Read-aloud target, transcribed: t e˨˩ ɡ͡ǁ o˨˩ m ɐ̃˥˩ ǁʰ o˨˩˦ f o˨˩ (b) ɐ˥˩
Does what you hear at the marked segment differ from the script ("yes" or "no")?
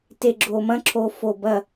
no